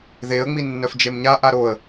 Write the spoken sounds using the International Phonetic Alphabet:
ð e ə̯ ŋ͡m i nː œ f d͡ʒ e m ɲ a ʔ a ɾ o ə̯

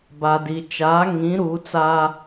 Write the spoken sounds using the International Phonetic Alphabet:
b a˨ d i˨ t͡ʃ aː˨˦ ŋ ĩ˨˦ ɾ u˨˦ t͡s a˦

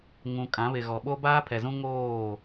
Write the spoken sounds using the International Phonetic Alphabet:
ŋ ũ˨ kʼ ã˨˦ β ɪ˨ ɣ ɔ˨ ɓ o˦ b aː˦ pʰ ɛ˨ z ũ˦ ŋ oː˦˨

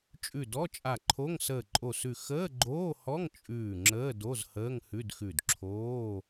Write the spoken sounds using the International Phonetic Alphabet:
t͡ʃʼ ʉ˧˩ d ɔ˧˥˧ t͡ʃʼ a˧˩ ǃʰ o˧˥˧ ŋ s əː˧˩ ǃʼ o˧˩ s ʉ˧˩ x əː˧˥˧ ɡ͡ǃ oː˧˥˧ h ɔ˧˥˧ ŋ t͡ʃʼ ʉː˧˩ ŋ͡ǁ əː˧˥˧ d o˧˥˧ z h əː˧˥˧ ŋ h ʉ˧˥˧ d x ʉ˧˩ d ǁʰ oː˧˥˧

